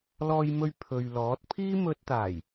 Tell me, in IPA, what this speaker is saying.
l ɔː˧ j m ɵ˧ ɥ pʰ ɵ˨ ɥ l ɔː˨˥ t̚ pʰ iː˥ m ɵ˧ t̚ t̪ aː˨˩ j

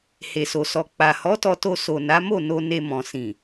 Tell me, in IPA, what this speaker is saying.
h e˨ s o˨ s ɔ˨ k͡p a˨ h ɔ˨˦ t ɔ˧ t o˧ s o˨ n a˨˦ m o˦˨ n o˧ n e˨ m ɔ̃˨ s ĩ˨

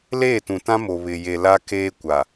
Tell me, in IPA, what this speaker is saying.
l eː˦˨ t ũ˨ t ã˦ m o˨ β ɪ˨ j e˨ l a˦ k eː˦ kʷ a˨

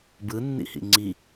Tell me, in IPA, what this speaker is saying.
b ɯ nː ḭ h ḭ ŋ͡ǀ i

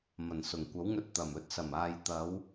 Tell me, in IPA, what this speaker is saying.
m ɐ˨˩ n s ʊ˨˩ ŋ kʷ ɐ˨˥ w ŋ ɵ˧ t̚ t̪ ɐ˨˩ m ɵ˧ t̚ s ɐ˨˩ m aː˨ j t̪ ɐ˨˧ w

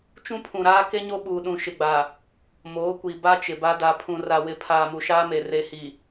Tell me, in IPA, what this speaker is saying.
t͡ʃ ũ˦ pʰ ũ˨ ɾ aː˦ k e˦ ɲ o˦ ɓ uː˨ ɗ ũ˨ ʃ ɪ˨ ɡ͡b a˨ | m oː˨˦ kʷ i˨ b a˦ t͡ʃ ɪ˨ b a˦ d a˨ pʰ ũ˨ r a˨ w ɪ˨ pʰ aː˨ m u˨ ʃ aː˦ m e˨ r e˨ h i˨

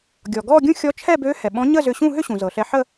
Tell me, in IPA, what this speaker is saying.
ɡʲ ɔ˩ ɡ ɔ˥˧ ɡʲ ũ˥˧ xʲ ɔ˧˥ t͡ʃʰ ɛ˥˧ b ø˧˥ h ɛ˩ ɓ ɔ̃˧˥ ɲ ə˥˧ z ʏ˧ ɕ ũ˥˧ ɦ ʏ˥˧ ɕ ũ˩ z ɤ˩ ɬ ɛ˧ ħ ə˥˧

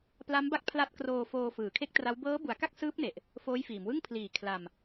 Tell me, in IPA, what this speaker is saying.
p l a˦˥ m b a˦˥ k̚ pʰ l a˦˥ t̚ k r oː˧ f oː˧ f ɯː˨˩ kʰ e˥˩ k̚ t r a˦˥ w b ɤː˦˥ b u˩˦ a̯ k a˥˩ k̚ s ɯː˦˥ p̚ n e˨˩ ʔ | f oː˦˥ j f iː˩˦ m w ɯ˥˩ ŋ pʰ l iː˨˩ kʰ l a˧ m

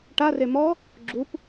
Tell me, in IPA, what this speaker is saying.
ʈ a r e m ɔ | ɡ͡ǁ u p

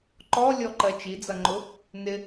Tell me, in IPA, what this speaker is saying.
ǃ ɔ lʲ ɔ ǃ ɜ t͡ʃ i d͡z ʌ ŋ͡ǃ ʊ | n ɪ

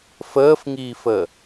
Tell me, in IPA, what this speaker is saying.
f əː f ŋ iː f ə

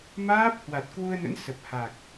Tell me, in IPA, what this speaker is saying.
m aː˦˥ p̚ h w a˨˩ t̚ k w u˧ ə̯ n ə̰˧˥ n s ə˨˩ p̚ h a˨˩ k̚

